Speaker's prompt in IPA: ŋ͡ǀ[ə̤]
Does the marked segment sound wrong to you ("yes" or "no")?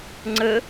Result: yes